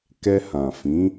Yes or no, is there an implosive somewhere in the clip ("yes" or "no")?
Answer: no